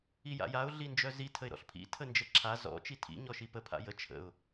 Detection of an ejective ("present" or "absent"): absent